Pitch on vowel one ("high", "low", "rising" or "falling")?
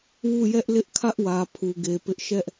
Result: falling